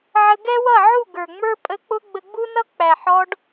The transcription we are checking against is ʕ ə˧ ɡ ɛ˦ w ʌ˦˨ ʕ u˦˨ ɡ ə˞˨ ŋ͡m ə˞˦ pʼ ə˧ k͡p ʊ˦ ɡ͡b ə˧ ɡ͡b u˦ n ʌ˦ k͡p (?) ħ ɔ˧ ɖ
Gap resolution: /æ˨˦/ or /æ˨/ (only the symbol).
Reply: æ˨